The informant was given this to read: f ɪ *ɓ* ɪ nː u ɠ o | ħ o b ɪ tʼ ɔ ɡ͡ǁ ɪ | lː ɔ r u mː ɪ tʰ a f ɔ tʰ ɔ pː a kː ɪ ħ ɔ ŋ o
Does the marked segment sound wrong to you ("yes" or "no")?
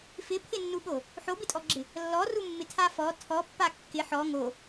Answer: yes